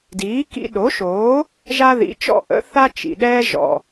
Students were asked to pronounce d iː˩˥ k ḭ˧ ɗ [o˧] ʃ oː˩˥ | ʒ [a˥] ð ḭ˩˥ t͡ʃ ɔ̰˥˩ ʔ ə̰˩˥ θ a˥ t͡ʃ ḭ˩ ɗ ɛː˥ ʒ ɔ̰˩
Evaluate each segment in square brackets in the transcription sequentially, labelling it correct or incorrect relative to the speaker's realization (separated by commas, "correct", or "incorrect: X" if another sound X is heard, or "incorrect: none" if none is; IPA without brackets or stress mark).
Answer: incorrect: o˩˥, correct